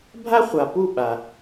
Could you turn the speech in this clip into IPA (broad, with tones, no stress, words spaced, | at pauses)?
bʱa˦χʷa˨ pu˦˨ɓa˨